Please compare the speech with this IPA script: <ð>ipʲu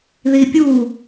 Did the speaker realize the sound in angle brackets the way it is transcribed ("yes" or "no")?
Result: yes